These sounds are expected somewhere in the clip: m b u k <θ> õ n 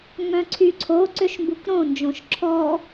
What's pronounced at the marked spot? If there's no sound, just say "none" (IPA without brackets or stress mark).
ɾ